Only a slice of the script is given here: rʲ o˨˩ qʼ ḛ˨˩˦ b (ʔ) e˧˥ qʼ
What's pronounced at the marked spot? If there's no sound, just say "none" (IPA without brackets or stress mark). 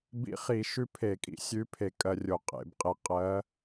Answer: qʼ